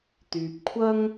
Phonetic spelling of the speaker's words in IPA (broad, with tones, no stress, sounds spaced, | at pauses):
t̪ yː˨ p̚ kʷʰ ɐ˥ ŋ